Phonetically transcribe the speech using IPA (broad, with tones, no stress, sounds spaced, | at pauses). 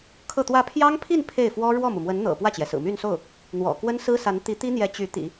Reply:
kʰ ɤ˥˧ t̪ w ä˥˩ pʰ j ɑ˥ ŋ pʰ i˥˧ n pʰ e˥˩ ɪ̯ f w ɔ˥ ɻ w ɔ˥˩ m u˩ m w ə˧˥ n n̪ ɤ̰˨˩ p w ä˥˩ t͡ɕ j ɛ˩ s ɹ̩˨˩ m y˥˧ n s o˥˩ ʊ̯ | n̪ w ɔ̰˨˩ k w ə˥ n s ɹ̩˥ s a˧˥ n t̪ i˧˥ t̪ i˥ n̪ j ɛ˧˥ t͡ɕ y˧˥ t̪ ḭ˨˩˦